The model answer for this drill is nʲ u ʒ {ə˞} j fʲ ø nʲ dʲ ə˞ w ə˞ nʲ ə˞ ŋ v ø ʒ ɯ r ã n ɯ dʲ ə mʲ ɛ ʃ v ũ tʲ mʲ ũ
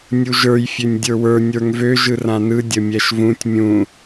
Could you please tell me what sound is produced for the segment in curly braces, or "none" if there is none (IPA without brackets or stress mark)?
ə˞